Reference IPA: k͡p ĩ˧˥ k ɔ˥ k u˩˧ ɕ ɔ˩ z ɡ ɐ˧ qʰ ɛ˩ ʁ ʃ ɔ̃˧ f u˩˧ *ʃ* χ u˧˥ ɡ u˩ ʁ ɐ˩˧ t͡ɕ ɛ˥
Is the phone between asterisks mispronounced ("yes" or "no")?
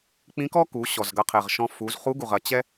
yes